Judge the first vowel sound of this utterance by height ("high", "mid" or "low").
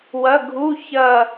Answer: low